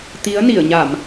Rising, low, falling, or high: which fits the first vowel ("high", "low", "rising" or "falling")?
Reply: rising